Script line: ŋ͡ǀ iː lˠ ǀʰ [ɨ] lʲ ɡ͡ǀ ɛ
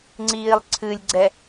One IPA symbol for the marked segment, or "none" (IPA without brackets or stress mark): ɨ